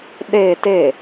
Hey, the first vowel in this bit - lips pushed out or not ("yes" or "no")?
no